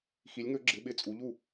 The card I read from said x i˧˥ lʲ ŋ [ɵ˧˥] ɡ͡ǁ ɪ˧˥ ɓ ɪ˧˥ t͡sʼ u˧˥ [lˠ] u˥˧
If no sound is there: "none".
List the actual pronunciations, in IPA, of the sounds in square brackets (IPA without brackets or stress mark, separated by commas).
ɵ˧˥, ʎ